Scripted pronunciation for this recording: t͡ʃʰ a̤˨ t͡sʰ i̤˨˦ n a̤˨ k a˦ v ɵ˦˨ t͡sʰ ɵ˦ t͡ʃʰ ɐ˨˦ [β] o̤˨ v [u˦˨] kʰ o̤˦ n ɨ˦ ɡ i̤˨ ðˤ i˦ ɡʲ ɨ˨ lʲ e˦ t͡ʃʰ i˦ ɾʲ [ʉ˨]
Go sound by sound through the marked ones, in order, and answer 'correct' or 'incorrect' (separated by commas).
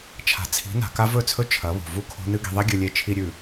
correct, correct, correct